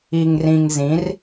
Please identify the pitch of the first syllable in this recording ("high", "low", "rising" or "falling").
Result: low